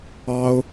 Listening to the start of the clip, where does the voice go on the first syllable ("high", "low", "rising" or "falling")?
high